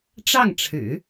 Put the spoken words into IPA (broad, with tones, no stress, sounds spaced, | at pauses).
ʈ͡ʂ ɑ˥˩ ŋ ʈ͡ʂʰ ɻ̩˨˩˦